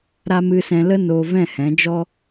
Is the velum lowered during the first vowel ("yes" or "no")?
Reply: no